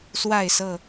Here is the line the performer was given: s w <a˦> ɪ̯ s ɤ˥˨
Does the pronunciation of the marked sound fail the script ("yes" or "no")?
yes